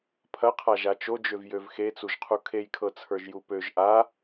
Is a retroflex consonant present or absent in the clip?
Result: absent